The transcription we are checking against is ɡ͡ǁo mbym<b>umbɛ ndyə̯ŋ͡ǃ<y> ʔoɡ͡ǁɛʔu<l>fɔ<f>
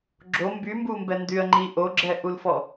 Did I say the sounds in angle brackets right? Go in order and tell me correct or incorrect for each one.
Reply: correct, incorrect, correct, incorrect

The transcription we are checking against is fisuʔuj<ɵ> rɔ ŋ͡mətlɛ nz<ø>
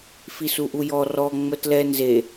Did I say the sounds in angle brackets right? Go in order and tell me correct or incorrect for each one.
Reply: incorrect, incorrect

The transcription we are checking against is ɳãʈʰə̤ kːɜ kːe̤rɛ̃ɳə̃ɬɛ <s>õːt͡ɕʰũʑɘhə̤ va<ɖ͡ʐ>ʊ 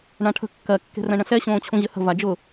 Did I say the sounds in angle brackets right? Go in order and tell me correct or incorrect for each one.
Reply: incorrect, incorrect

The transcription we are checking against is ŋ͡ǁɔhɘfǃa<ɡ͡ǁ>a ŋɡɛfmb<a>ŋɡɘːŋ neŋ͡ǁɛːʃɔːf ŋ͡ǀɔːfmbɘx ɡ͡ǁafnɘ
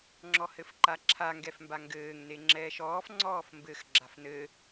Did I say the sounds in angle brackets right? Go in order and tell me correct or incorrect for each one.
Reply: incorrect, correct

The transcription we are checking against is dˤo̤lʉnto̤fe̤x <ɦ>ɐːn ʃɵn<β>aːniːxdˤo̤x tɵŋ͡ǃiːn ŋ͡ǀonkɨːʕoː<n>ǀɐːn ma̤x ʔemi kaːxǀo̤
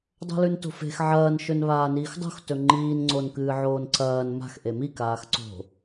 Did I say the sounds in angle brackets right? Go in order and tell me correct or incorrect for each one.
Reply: incorrect, correct, correct

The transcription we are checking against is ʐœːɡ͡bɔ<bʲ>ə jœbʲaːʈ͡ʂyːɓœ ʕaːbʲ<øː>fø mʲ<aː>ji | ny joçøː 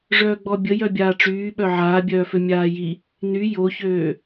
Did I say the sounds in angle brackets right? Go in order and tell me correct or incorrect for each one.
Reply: correct, incorrect, correct

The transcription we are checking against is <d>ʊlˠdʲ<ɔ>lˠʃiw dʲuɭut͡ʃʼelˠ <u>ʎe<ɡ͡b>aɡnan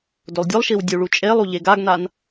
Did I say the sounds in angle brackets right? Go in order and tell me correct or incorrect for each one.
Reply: correct, incorrect, correct, incorrect

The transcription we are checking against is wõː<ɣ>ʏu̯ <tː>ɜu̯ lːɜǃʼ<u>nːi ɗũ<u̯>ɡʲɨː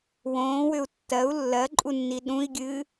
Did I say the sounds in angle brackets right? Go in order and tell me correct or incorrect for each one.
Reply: incorrect, correct, correct, incorrect

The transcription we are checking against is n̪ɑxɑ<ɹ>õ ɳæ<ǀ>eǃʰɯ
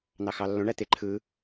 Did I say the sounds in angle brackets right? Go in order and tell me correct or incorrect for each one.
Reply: incorrect, incorrect

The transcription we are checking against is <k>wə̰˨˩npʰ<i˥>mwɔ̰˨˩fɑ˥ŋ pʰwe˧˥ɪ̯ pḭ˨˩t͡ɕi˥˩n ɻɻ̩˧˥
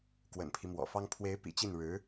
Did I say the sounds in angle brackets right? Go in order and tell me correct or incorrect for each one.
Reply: correct, incorrect

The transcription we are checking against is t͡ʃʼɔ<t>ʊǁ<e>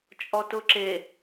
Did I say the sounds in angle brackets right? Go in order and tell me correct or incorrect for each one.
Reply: correct, correct

